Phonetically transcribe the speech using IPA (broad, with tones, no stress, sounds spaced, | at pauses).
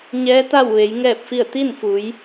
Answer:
ɲ ɛː˧˥ t̪ a˥˨ w ʋ e˩˧ j ŋ ɛː˥˨ p̚ f i˥˨ ə̯ t̪ i˥˨ n f u˩˧ j